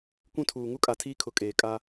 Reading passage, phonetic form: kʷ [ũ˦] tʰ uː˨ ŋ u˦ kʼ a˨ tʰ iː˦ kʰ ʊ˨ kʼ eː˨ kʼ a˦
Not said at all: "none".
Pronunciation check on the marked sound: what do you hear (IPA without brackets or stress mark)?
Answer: ũ˦